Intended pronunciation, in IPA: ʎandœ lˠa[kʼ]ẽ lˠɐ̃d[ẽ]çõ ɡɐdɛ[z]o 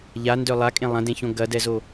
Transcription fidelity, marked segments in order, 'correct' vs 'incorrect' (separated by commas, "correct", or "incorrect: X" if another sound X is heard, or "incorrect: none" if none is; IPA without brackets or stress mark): correct, correct, correct